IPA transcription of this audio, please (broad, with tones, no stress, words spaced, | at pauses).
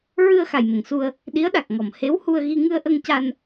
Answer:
ɹɨ˧ə̯ xa˨˩jmə˨˩˨ŋsu˧ə̯ | ɗi˧˥ə̯ɗa˨˩k̚ŋɔ˨˩˨m he˧˥whu˧ə̯ɣi˧ ŋɨ˧ə̯ʔə˧ŋ ca˧n